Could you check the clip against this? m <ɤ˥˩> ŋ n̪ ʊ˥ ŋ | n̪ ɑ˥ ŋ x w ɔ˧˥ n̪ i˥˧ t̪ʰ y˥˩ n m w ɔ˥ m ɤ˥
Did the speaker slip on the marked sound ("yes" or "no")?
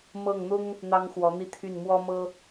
no